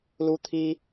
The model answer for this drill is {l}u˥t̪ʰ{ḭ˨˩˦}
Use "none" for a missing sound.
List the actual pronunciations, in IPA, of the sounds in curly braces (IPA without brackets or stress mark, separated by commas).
l, i˥